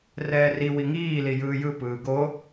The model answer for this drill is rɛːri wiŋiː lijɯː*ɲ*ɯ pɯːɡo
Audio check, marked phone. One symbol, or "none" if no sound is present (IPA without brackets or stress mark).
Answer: j